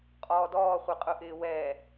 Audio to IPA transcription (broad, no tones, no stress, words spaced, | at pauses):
qʼɔːdɔːχʷiqʼʊ ʔɪːwɛ